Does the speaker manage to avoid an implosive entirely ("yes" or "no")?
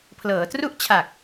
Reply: yes